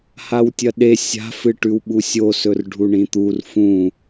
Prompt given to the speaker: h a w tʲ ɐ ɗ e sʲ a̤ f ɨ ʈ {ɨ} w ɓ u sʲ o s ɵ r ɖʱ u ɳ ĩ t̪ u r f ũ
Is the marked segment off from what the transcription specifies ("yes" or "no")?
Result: yes